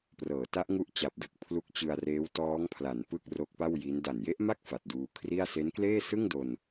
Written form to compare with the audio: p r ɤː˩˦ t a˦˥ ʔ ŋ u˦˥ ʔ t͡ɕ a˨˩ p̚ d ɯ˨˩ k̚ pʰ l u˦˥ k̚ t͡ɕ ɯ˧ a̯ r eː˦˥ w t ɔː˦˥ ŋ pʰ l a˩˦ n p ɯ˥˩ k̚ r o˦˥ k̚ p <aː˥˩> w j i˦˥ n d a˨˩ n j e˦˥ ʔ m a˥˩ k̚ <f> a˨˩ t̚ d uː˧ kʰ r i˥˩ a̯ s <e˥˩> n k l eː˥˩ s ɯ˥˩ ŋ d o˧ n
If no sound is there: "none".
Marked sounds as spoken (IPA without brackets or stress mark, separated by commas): a˥˩, f, e˦˥